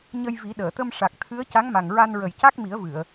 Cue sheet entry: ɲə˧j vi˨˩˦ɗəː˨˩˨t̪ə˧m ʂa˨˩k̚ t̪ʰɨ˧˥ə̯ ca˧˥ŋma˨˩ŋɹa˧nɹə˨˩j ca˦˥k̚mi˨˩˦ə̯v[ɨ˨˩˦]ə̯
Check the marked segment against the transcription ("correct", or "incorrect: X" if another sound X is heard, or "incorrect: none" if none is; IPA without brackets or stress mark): incorrect: ɨ˨˩˨